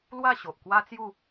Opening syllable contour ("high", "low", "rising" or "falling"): falling